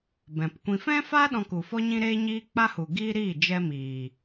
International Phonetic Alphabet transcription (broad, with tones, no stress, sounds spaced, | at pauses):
b ɛ̃˨ p kʷ ĩ˨ f ɛ̃˦ f a˦ ɗ ɔ̃˧ k u˨ f ɔ˦ ɲ ĩ˦ ɾ eː˦ ɲ iː˦ k͡p a˦ h u˨ ɡ iː˦ ɾ iː˦˨ d͡ʒ ɛ˦ m iː˨